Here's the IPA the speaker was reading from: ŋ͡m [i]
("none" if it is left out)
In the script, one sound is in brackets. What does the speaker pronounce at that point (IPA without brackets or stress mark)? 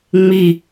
i